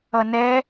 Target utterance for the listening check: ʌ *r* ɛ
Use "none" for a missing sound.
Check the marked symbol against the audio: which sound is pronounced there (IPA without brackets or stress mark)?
n